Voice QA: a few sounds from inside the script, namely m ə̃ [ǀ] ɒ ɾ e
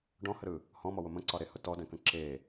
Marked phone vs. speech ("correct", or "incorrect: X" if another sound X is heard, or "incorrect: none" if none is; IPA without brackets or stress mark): correct